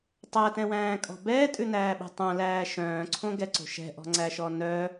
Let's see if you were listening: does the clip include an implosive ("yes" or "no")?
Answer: yes